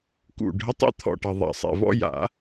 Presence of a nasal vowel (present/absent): absent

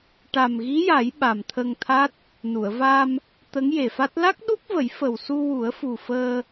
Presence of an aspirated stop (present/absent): present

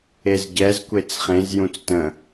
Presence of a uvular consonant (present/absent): present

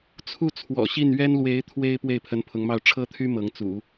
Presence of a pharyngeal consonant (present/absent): absent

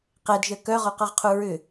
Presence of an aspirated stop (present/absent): present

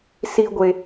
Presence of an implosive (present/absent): absent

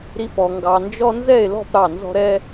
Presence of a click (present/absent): absent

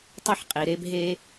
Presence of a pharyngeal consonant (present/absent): present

